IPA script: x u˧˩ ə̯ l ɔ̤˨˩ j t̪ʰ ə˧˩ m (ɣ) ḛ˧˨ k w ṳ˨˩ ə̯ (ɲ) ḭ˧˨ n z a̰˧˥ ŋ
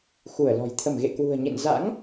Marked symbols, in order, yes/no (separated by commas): yes, yes